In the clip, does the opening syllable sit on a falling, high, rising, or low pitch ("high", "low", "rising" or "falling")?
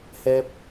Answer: high